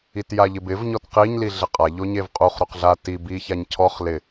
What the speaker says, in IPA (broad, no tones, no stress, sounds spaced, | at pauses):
i t j a ʎ ɪ b ɪ v ɲ ɔ t q i ɲ l i ɮ ɪ qʼ a ʎ o ɲ e v qʼ u χ ɾ o q ɮ a t i b i ç a ɲ cʰ ɔ χ l ɪ